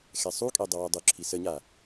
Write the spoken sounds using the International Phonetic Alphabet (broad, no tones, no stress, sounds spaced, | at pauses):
x ɛ sˤ u kʼ e dˤ ɐ w ɛ dˤ u ǁʰ i s ə ɲ a